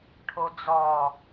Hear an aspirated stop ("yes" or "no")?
yes